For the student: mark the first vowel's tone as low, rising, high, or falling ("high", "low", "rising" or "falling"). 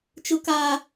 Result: high